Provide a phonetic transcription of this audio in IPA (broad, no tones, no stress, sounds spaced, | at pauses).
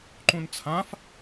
ǃ ũ n t͡sʰ ã f